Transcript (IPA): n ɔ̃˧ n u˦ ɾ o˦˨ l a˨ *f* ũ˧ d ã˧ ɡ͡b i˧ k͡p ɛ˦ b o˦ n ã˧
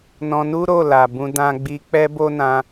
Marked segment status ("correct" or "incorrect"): incorrect